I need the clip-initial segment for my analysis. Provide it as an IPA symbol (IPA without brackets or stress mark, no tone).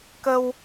k